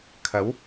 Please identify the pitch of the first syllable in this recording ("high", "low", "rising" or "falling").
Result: rising